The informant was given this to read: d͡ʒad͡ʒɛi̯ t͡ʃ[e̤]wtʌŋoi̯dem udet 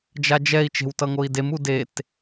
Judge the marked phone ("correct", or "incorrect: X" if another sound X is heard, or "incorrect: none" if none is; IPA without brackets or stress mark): correct